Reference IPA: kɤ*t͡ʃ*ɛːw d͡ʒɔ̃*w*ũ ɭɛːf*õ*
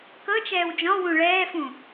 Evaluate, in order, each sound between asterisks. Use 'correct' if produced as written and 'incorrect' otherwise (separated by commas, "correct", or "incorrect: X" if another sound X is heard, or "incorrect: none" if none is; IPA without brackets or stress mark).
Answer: correct, correct, incorrect: ũ